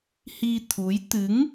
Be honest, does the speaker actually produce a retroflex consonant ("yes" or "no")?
no